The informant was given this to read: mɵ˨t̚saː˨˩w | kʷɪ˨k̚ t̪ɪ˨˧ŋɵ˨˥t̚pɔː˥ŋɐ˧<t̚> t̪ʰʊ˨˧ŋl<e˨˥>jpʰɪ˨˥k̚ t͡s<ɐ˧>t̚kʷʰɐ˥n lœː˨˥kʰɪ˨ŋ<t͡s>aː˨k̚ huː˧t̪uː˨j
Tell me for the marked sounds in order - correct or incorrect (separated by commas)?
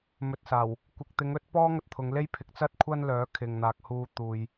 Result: correct, incorrect, incorrect, incorrect